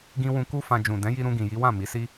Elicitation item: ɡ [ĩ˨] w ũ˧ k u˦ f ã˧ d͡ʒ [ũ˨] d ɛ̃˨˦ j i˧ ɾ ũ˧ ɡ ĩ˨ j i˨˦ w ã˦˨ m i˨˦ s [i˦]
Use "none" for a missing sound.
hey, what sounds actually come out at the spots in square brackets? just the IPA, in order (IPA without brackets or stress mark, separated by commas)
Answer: ĩ˧, ũ˨, i˦